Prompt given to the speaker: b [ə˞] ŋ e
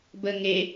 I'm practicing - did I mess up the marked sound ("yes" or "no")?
yes